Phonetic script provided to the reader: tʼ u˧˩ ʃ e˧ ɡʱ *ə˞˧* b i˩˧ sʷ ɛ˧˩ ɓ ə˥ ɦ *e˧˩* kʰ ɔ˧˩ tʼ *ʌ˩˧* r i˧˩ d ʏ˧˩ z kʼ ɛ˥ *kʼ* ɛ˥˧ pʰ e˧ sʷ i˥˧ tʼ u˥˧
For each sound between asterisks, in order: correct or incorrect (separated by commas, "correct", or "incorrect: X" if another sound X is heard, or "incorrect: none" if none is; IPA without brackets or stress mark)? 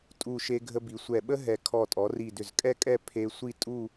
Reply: incorrect: ə˧, incorrect: ɛ˧˩, incorrect: ɔ˩˧, correct